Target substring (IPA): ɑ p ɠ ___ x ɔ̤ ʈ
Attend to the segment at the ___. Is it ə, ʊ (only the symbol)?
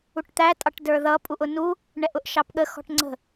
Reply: ə